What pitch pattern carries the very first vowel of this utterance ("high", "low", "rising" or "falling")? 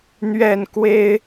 falling